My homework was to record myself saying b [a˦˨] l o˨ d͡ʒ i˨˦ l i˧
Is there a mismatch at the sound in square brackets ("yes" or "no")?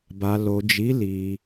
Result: yes